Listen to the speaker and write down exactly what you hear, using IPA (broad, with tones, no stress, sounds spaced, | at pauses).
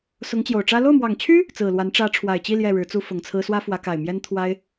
s ʊ˧˥ ŋ t͡ɕ j o˨˩ ʊ̯ ʈ͡ʂ ä˥ l o˥˩ ʊ̯ m w ɑ˨˩ ŋ t͡ɕʰ y˥ | t͡s ɹ̩˨˩ l w a˧˥ n ʈ͡ʂ ä˧˥ ʈ͡ʂʰ w a˨˩ ɪ̯ t͡ɕ i˥˧ l j ɛ˥˩ ɻ ɻ̩˧˥ t͡s u˥ f ʊ˨˩ ŋ t͡sʰ ɹ̩˥ s w ä˥ f w ä˧˥ k a˨˩ ɪ̯ m j ɛ˥ n t̪ʰ w a˥ ɪ̯